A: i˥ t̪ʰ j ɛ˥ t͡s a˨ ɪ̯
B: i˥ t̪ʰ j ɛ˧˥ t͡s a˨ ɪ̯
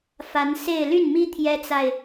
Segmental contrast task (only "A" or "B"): A